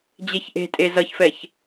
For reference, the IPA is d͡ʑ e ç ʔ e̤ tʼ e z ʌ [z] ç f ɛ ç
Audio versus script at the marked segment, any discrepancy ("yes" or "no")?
yes